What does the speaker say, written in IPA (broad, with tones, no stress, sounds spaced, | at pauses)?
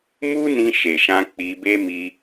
m u˦ n ĩ˧ ʃ e˨ ʃ ã˧ k͡p i˧ b e˦ m i˧